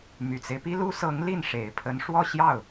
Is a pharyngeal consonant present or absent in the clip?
absent